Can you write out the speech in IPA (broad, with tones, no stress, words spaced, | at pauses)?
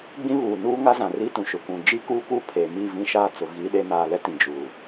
ɡ͡bĩ˦βuː˨nuː˦ ŋa˦zã˨ri˦tũ˨ ʃʊ˨kʷũ˨ d͡ʒi˦kuː˦kuː˦ pʰeː˨mi˦˨ vĩ˦ʃaː˦t͡sʊ˨ ɣi˨˦ɗe˨˦naː˨ lɛ˦tĩ˨ d͡ʒuː˨